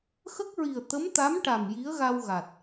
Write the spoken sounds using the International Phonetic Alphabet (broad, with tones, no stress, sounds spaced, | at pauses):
x ə˦˥ k̚ ɹ i˨˩ ə̯ t̪ ə˧˥ m t̪ a˧˥ m ʈ a˨˩ m j i˧˥ ə̯ ɣ a˧ w ɣ a˨˩ t̚